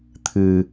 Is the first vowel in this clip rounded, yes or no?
no